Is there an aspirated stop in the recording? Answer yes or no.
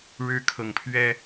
yes